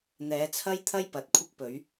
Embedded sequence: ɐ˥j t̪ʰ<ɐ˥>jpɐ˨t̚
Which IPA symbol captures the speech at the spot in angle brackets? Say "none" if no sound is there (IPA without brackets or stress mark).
ɐ˥